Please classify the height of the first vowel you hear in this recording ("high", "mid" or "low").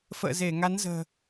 mid